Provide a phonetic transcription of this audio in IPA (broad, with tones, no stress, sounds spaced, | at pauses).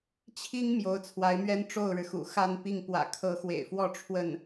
t͡ɕʰ i˥ ŋ m j o˧˥ ʊ̯ t͡sʰ w a˧˥ ɪ̯ m ɥ ɛ˥ n ʈ͡ʂ o˥˩ ʊ̯ ɻ ɻ̩˩ x ṵ˨˩ x a˥˧ n p i˥˩ ŋ p w ä̰˨˩ kʰ ɤ˧˥ x w ḛ˨˩ ɪ̯ f w ɔ˥˧ ʈ͡ʂʰ w ə˥˩ n